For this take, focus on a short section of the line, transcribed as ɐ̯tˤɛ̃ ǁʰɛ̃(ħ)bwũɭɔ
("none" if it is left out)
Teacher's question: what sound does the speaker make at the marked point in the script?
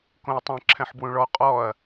ħ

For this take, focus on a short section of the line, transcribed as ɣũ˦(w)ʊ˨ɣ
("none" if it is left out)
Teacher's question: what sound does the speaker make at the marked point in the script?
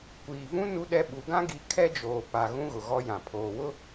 ɣ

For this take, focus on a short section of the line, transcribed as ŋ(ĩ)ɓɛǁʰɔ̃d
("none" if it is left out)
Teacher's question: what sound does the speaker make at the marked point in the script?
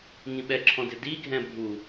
ĩ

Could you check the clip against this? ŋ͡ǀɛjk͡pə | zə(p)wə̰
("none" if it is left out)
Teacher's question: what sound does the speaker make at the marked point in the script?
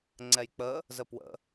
p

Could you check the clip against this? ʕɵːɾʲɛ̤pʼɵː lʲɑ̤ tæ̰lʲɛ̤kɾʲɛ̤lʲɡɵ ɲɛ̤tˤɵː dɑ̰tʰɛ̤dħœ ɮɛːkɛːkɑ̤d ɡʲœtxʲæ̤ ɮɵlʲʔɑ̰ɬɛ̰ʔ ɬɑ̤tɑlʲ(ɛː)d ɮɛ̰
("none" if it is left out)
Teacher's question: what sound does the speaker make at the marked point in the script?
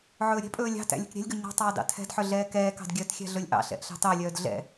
œː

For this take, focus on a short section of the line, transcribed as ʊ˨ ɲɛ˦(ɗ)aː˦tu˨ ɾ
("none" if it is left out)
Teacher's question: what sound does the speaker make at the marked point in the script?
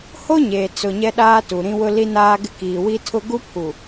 ɗ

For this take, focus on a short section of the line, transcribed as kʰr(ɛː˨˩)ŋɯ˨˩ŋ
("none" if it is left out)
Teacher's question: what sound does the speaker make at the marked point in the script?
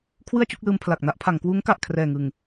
ɛː˨˩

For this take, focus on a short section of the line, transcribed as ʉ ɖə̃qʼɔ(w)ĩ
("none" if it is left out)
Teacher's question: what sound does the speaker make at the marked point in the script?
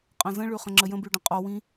w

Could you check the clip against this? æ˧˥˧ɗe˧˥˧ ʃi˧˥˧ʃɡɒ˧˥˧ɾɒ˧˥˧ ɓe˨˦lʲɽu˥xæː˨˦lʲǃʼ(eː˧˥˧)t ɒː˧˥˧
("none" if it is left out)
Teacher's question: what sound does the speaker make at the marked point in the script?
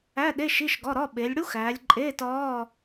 eː˧˥˧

